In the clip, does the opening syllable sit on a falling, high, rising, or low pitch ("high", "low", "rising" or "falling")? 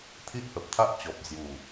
high